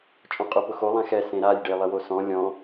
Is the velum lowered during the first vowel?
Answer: yes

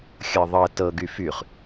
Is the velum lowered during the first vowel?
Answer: no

